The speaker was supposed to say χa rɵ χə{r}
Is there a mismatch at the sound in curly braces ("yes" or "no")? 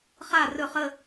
yes